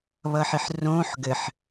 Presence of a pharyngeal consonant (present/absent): present